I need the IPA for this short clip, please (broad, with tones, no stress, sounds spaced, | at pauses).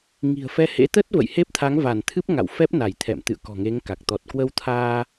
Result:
ŋ i̤˨˩ ə̯ f ɛ˧ h ḛ˧˥ t̪ ə˦˥ t̚ v ə̰˧˨ j h e˦˥ p̚ t̪ʰ a˨˦ ŋ v a˧˩ n t̪ʰ ɨ˦˥ p̚ ŋ a̰˧˨ w f ɛ˦˥ p̚ n a˧˩ j t̪ʰ ɛ̰˧˨ m t̪ ɨ̰˧˨ ə̯ k ɔ̤˨˩ ŋ e˨˦ ŋ k a˨˩ k̚ t̪ ɔ˨˩ t̚ k w ə˧ w t̪ʰ aː˧